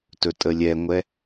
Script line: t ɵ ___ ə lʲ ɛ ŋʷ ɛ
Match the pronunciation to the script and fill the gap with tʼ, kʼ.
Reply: tʼ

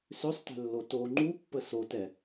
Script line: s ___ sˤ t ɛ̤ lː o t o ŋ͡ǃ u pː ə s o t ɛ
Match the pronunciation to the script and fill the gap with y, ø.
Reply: ø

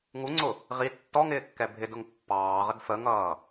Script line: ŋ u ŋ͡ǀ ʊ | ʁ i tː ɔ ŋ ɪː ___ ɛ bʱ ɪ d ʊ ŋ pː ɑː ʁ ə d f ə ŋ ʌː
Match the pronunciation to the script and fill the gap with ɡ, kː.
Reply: kː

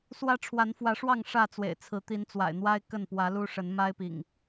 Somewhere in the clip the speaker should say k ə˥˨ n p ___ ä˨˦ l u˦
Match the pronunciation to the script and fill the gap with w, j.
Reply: w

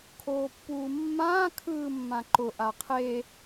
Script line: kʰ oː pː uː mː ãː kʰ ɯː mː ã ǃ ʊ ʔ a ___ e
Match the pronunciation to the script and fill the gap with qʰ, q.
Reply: qʰ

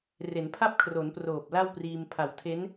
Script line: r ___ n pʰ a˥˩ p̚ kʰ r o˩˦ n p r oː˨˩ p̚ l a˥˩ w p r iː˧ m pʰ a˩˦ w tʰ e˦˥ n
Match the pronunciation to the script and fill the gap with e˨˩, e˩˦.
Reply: e˩˦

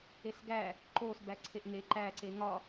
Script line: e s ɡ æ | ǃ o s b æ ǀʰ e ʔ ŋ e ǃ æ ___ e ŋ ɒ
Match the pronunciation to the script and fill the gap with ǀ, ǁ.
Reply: ǀ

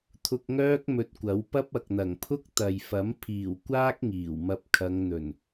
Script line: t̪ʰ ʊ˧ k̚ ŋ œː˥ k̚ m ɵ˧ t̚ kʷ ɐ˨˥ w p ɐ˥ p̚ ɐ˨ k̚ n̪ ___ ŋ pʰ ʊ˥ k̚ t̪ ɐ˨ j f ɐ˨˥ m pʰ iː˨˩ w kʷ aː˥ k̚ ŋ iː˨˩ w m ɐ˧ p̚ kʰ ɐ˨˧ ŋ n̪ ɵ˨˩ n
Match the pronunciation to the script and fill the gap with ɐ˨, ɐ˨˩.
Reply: ɐ˨˩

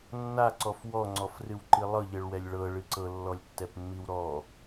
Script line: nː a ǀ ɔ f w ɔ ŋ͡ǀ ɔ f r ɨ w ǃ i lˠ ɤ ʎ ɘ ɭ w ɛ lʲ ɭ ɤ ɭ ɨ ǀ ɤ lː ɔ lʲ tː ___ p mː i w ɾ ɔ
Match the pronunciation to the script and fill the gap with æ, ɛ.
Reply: ɛ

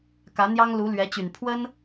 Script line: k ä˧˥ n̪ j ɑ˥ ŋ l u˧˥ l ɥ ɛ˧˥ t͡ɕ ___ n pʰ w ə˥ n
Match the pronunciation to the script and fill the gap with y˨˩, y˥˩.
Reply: y˨˩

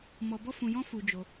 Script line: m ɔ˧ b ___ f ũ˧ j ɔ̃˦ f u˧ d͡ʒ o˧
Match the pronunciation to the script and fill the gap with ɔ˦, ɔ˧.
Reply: ɔ˦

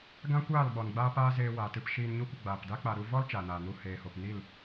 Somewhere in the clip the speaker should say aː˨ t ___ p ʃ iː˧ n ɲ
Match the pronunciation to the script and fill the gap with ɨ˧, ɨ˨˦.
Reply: ɨ˧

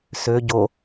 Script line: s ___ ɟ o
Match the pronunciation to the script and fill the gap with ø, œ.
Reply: ø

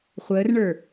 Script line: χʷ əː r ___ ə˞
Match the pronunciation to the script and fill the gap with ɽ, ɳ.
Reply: ɳ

